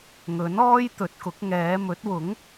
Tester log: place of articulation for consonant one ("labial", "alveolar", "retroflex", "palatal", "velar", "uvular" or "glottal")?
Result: velar